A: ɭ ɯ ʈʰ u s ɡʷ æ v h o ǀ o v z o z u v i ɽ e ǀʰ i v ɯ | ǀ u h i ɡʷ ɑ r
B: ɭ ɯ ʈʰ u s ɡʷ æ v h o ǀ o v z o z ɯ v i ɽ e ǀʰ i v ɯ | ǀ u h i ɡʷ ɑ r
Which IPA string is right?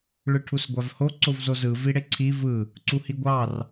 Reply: B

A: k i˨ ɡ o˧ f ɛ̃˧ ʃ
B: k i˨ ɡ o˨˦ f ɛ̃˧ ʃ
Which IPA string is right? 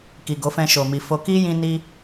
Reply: B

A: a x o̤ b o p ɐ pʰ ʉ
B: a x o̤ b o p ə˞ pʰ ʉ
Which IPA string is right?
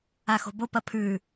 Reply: A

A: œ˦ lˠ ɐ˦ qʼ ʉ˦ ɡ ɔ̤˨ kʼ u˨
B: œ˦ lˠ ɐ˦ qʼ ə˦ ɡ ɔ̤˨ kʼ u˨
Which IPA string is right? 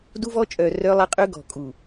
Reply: A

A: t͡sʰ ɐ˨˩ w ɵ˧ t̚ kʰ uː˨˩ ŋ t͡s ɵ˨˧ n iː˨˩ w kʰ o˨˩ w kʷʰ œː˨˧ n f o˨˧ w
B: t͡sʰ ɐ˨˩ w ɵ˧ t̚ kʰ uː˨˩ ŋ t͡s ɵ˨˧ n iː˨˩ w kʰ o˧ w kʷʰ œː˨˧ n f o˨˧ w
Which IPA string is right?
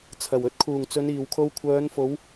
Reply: B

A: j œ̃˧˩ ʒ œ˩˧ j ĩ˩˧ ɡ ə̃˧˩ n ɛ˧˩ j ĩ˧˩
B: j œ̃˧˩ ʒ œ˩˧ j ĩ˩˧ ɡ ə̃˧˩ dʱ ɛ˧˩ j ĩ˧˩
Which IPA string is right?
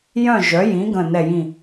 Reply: A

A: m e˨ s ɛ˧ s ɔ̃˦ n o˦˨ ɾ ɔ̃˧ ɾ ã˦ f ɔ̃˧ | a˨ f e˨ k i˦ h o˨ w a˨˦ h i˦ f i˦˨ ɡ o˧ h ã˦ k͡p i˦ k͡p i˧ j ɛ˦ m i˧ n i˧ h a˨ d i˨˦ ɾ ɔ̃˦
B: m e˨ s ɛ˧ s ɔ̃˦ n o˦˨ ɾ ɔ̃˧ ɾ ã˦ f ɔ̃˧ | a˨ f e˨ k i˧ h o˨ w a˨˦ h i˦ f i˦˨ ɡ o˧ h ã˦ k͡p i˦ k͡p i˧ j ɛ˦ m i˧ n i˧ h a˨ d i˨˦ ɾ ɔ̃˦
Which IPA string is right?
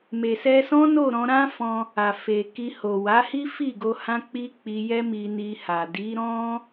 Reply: B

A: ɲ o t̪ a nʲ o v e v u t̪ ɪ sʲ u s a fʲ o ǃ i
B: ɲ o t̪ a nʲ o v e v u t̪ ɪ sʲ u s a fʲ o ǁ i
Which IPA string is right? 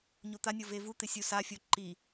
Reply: A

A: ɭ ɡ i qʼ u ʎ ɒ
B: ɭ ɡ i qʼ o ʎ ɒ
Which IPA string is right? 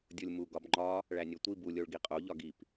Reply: B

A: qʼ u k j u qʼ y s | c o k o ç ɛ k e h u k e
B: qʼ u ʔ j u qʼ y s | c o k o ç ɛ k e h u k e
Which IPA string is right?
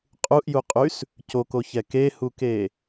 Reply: B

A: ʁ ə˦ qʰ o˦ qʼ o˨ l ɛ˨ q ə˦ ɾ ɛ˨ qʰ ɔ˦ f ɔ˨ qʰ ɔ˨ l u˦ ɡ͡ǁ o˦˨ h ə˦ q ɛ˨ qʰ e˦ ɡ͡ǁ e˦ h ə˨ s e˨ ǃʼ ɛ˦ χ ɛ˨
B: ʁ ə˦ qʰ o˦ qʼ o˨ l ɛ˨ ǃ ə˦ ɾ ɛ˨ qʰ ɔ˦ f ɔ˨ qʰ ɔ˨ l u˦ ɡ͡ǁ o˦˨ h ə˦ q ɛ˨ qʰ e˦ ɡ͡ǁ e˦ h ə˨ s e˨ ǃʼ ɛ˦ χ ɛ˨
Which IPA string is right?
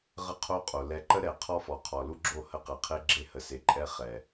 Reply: B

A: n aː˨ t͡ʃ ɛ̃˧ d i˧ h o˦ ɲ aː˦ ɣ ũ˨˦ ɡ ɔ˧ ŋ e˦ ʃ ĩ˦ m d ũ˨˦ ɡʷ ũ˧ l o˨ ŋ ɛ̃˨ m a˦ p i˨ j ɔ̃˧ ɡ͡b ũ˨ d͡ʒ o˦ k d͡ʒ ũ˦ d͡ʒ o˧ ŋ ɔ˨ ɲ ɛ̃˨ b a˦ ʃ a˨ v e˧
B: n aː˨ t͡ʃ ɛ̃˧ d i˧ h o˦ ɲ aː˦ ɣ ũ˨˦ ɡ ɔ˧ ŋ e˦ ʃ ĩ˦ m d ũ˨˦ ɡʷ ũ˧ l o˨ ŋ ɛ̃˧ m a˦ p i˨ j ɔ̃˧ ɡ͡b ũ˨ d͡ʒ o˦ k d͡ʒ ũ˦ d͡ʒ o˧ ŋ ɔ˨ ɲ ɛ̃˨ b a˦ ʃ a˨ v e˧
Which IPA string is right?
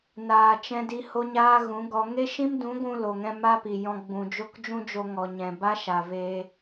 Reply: B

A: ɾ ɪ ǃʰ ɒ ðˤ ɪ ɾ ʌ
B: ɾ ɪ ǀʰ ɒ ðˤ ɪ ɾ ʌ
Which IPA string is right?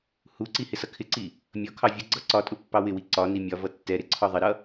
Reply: B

